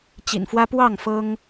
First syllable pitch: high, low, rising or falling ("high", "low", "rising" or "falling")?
low